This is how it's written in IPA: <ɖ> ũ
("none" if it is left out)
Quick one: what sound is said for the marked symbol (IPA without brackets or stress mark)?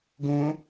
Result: ɡ